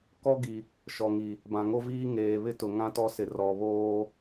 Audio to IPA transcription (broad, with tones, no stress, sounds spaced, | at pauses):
k ɔ˦ ɡ i˨ | ʃ ɔ˨ ŋ i˨ | b ã˨ ŋ o˦ v iː˦ ŋ eː˨ β ɪ˦ t ʊ˨ ŋ ã˦ t ɔ˦ s ɪ˨ r ɔ˨ β oː˦